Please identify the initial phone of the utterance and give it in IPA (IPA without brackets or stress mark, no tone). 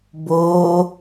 b